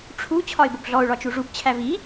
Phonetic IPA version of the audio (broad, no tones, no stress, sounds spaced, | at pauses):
ʈ͡ʂʰ u t͡ɕʰ ɒ ɪ̯ b ʊ b ɮ ɔ ʊ̯ ɭ ɒ t͡ʃ u ʐ u b t͡ɕʰ æ v i